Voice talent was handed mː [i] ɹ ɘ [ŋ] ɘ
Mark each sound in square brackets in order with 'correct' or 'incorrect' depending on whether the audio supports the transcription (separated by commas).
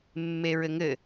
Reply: incorrect, correct